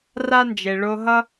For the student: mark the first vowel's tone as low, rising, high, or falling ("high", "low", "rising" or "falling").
high